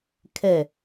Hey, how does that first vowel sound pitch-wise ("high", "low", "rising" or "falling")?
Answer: falling